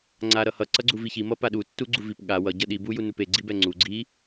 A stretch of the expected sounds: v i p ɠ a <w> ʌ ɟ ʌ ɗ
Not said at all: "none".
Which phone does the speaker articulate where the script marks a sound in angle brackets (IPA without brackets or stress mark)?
w